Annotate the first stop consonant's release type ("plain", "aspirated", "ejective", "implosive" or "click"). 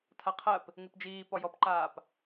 aspirated